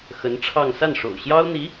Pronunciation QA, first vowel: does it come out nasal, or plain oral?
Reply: oral